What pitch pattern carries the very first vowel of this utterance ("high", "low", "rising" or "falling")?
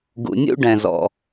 low